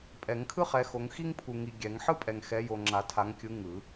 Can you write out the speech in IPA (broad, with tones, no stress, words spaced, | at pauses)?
pʼɛ˨˩˦ŋkʰɯ˥χɛ˨˦xo˨˦ŋ xi˥ŋpʰu˨ŋi˨ ɡʲɛ˨˩˦ŋ ħɯ˥pʼɛ˨ŋxɛ˨˦jo˨ ŋ͡ǁa˨˩˦tʰa˨˦ŋ kʲɯ˨˦ ŋɯ˨˩˦